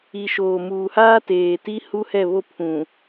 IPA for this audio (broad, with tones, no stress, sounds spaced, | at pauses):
i˨ ʃ oː˨ m uː˨ h aː˦ t eː˨ t i˦ h u˦ h ɛ˦˨ β o˦˨ pʰ ũ˨